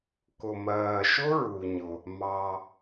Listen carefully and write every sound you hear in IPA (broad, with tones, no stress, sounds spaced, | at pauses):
k ʊ˩ m ɜː˩ ʃ ʊ˥ ɹ u˩ ɲ ʊ˩ | m ɑ˩